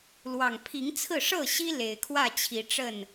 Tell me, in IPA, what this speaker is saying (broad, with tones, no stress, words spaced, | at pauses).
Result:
lwɑ˨˩ŋpʰi˨˦ŋ t͡sʰɹ̩˥˨ ʂɤ˥˨ɕi˦ le˨˩ɪ̯kʰwä˥˨t͡ɕʰi˨˦ʈ͡ʂə˥˨n